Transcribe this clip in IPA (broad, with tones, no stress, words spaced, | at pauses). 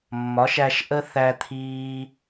mːɒ˨˦ʃæ˧ʃʔə˦ θæ˦t̪ʰiː˦